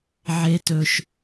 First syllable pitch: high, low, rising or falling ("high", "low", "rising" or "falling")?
high